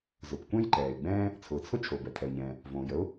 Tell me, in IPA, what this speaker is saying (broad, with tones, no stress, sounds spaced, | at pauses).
z ʊ˩ p kʷ ɛ̃˥ j ǃ ɛː˩ ɪ̯ ɡ͡b ɛ̃ː˥ | t͡sʰ ʊː˩ t͡sʰ ʊ˥ t͡ʃʰ o˩ b ɛ˩ tʰ ɛ˩ ʊ̯ ɲ ɛ̃ː˩ | v õː˩ j ə˥ ʊ̯